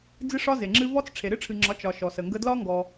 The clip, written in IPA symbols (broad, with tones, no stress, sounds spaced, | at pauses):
d͡z ɨ˦ ʂ ɒ˦ z e˨ ŋ͡ǁ ɨ˦ v ɔ˦ t͡s ʈ͡ʂʰ e˨ ɾ ɨ˦ ʈ͡ʂʰ ɨ˨ ŋ͡ǁ ɒ˨˦ t͡ʃ ɒ˨ ʃ ɔ˨ s ə˨ ŋ ɡ ə˦ d l ɒ˦ ŋ ɡ ɔ˧